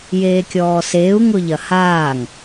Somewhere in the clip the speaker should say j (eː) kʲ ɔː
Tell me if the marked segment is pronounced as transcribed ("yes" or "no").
yes